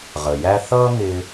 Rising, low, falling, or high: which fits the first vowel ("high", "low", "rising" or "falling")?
low